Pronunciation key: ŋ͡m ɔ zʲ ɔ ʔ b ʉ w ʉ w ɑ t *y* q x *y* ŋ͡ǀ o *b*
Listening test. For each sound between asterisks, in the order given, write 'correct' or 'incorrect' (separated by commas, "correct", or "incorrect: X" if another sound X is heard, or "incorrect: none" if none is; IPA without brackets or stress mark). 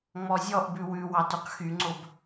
correct, correct, correct